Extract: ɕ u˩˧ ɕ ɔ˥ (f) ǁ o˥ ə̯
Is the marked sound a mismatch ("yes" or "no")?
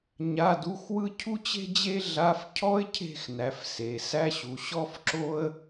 no